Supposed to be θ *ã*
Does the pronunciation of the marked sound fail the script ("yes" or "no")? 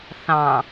yes